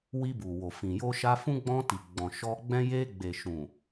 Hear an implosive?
no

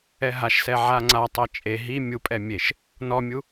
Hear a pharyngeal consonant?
yes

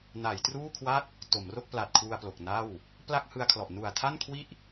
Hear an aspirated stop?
yes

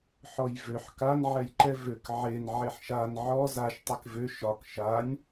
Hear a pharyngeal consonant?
yes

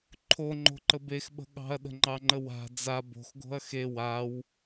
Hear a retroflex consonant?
no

